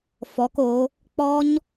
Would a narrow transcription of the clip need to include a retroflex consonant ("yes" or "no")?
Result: no